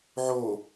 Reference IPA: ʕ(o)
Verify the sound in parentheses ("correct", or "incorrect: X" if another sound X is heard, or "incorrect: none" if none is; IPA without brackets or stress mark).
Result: correct